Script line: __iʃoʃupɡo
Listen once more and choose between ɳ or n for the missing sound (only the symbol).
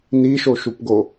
n